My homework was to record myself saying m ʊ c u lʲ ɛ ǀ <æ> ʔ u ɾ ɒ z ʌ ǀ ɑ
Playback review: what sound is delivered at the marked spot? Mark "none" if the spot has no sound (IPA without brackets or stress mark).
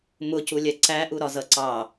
æ